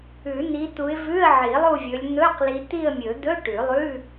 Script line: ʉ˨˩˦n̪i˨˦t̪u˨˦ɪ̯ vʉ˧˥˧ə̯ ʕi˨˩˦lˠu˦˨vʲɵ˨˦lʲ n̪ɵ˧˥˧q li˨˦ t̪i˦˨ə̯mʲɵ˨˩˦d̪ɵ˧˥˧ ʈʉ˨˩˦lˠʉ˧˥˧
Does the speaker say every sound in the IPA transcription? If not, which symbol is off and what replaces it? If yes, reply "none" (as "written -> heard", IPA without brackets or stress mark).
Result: none